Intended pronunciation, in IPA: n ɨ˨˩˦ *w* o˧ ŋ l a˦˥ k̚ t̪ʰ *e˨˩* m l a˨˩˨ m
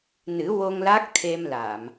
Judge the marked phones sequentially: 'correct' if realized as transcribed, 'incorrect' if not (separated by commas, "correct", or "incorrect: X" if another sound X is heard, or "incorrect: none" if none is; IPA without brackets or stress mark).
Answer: correct, incorrect: e˧